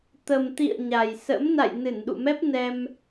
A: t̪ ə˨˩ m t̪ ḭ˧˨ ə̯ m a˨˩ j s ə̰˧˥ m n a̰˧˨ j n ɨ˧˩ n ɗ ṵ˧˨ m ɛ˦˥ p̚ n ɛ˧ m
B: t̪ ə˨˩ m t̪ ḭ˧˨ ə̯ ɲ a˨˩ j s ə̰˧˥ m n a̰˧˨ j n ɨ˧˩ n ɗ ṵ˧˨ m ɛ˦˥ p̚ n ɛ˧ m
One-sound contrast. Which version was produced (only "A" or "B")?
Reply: B